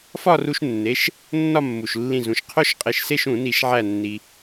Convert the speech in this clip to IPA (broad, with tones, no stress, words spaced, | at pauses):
fɒ˥˧ru˧ʃnːe˩˧˩ʃ | nːɒ˥˧mːu˩ʃlːĩ˧˩ zũ˩ʃ qʰo˥˧ʃqʼe˧˩ʃse˥˧ʃũ˧˩˧ ni˧˩˧ʃʕæ˧˩nːi˩